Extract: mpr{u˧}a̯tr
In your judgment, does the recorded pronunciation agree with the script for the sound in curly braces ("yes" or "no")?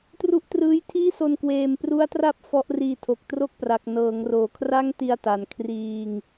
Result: no